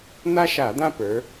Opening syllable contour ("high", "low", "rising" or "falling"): high